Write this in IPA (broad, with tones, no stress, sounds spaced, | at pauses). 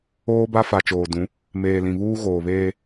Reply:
oː˦ b a˦ f a˨ t͡ʃ oː˨ d ũ˨˦ | m eː˨ l ĩ˨ β uː˦ ɣ oː˨ β eː˦